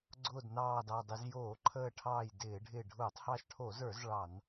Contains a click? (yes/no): yes